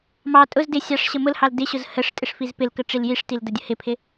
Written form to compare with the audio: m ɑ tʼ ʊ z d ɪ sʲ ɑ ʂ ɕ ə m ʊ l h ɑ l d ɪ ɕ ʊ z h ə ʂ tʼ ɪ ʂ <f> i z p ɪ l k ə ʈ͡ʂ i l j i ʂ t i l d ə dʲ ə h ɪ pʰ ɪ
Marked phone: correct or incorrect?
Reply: correct